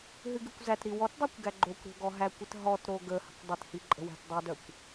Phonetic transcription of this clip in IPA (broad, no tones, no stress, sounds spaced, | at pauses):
ɦ ɨ ɡ ɨ kʷ z æ t ɾ i w ɔ t dˤ i kʷ ɡ æ ɡ͡ǃ o kʷ ɾ o̤ ɡ ɔ ɦ æ kʷ ɪ t ɦ ɔ t ɾ o ɡ ə h ə̤ kʷ dˤ ɪ t h i ǃʼ ə̤ w æ̤ t dˤ ɨ d œ kʷ